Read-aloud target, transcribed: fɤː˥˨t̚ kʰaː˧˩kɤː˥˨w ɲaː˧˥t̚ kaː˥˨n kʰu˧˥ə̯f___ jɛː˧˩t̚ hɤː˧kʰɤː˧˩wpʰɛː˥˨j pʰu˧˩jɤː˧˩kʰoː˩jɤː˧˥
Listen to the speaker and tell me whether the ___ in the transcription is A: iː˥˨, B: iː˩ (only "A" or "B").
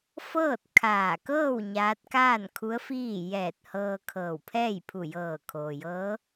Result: A